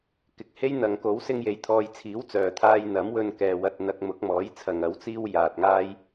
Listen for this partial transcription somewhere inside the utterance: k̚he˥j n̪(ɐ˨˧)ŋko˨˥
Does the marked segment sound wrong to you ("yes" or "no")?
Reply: yes